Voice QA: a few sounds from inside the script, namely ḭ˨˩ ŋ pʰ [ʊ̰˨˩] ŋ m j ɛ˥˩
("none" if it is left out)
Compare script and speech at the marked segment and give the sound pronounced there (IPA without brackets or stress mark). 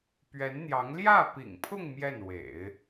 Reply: ʊ˥˧